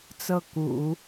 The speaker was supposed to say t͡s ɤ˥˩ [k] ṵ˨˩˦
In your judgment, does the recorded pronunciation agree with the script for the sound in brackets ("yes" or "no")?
yes